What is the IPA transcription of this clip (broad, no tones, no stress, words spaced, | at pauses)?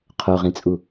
qʰoʁĩt͡sʼu